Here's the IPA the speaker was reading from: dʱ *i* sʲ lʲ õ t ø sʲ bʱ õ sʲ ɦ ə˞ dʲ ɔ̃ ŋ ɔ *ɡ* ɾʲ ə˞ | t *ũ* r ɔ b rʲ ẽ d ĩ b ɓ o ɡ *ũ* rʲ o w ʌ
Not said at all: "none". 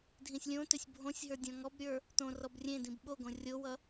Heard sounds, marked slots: ĩ, b, õ, õ

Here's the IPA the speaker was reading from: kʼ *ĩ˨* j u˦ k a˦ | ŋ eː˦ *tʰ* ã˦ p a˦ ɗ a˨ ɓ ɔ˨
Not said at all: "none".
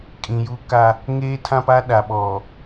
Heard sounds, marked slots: ĩ˨, tʰ

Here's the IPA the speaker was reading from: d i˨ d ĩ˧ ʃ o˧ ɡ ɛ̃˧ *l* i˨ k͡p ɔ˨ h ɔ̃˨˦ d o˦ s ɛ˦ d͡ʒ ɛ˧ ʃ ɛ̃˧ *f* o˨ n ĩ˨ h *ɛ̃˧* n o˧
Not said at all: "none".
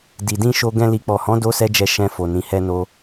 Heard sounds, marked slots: l, f, ɛ˧

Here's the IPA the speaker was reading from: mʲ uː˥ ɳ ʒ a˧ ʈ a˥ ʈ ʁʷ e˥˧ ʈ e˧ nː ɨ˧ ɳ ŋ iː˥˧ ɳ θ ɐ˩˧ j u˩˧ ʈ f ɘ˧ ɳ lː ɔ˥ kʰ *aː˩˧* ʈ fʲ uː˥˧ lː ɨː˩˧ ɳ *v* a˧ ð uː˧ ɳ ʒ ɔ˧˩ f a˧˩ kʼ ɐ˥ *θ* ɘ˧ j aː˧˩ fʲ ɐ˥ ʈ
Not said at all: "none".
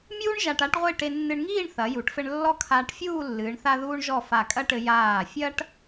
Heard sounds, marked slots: aː˧, θ, ʈ

